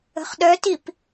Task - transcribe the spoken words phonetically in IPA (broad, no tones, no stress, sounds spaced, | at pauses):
ə̤ χ ɗ œ t i p